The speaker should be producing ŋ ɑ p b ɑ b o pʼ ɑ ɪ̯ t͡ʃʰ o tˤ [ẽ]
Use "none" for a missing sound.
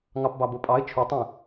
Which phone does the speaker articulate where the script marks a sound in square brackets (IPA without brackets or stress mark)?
ẽ